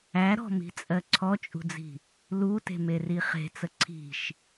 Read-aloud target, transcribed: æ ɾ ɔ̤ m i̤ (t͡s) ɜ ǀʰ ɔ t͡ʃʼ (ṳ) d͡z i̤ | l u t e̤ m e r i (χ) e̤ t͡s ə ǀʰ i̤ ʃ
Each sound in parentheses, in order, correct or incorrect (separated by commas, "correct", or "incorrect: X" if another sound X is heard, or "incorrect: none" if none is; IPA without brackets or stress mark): incorrect: t͡sʼ, correct, correct